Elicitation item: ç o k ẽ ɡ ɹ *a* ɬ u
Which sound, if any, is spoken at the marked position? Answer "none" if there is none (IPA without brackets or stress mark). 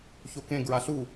a